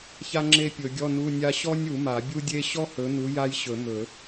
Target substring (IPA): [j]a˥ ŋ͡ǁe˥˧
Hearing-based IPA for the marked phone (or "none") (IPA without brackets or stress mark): ç